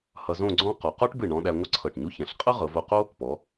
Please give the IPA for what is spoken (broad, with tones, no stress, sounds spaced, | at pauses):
h ʌ˧ z õ˥˧ ɡ͡ǀ ɔ̃˥ q ɔ˩˧ q ɔ˥ ʈ b ɨ˧˩ ɳ ɔ̃˧ ɗ æ˧ ŋʷ ʌ˥ ǀʰ ɤ˧˩ ʈ ɲ u˥ ç ɛ̃˩˧ ɬ qʼ ɤ˥ ʁ ɤ˩˧ v o˧ q o˥ | p ɔ˩˧